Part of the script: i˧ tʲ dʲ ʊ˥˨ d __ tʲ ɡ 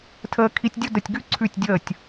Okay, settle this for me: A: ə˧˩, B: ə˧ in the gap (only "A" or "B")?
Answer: A